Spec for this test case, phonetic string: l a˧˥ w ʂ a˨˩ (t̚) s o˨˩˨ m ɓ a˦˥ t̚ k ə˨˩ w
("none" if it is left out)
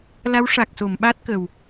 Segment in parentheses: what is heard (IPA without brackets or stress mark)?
k̚